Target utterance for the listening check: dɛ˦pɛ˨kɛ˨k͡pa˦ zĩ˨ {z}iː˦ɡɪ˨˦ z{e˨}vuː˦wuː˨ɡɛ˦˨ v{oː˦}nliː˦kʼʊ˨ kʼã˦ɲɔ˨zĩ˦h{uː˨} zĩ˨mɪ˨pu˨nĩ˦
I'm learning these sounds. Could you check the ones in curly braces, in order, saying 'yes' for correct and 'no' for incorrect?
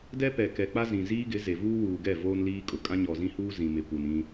yes, yes, yes, no

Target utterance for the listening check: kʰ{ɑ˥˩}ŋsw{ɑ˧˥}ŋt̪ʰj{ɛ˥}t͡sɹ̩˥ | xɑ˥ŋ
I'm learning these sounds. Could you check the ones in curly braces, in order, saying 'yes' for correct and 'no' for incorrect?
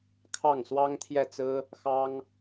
yes, no, no

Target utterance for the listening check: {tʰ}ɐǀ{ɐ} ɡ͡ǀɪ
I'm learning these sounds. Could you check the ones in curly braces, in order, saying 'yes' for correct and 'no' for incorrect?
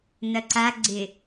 no, no

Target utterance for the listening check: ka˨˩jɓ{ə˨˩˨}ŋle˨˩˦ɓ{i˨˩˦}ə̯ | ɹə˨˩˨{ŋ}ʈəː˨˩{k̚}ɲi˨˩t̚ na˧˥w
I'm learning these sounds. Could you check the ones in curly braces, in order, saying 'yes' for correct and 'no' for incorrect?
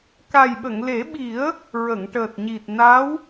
yes, yes, yes, no

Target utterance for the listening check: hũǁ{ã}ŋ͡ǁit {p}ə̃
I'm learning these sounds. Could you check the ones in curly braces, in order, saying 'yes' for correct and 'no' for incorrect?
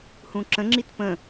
no, yes

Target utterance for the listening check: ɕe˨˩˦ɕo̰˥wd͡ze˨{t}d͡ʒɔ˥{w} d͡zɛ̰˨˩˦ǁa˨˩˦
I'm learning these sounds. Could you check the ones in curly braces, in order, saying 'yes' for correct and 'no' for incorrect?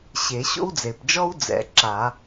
no, yes

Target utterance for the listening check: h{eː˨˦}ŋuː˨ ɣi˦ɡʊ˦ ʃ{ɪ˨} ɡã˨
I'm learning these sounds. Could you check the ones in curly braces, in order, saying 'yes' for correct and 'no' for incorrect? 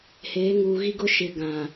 yes, yes

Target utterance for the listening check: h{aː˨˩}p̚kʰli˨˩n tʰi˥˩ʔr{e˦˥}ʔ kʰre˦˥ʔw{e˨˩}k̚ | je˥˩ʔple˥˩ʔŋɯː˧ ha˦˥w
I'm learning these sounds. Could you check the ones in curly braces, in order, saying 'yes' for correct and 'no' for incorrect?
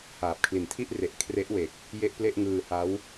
yes, no, yes

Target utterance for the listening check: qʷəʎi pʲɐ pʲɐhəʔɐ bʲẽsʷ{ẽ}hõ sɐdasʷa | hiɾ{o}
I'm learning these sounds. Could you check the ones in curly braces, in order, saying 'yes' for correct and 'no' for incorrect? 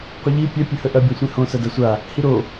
yes, yes

